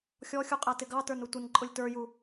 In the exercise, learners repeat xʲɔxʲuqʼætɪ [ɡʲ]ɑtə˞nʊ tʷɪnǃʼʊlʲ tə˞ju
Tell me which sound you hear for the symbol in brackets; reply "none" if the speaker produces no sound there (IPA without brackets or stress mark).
ɡ